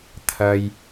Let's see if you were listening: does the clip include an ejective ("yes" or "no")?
no